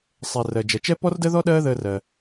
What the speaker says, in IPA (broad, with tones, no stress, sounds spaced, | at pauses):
sˤ ɛ˩ r ɜ˩ d͡ʒ ɜ˩ t͡ʃ ɛ˥ p ɔ˥ r d əː˥ ð ɔ˥ ɗ ɜː˥ ð əː˧ r ɜ˩